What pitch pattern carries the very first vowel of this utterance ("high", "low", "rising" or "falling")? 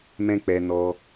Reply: high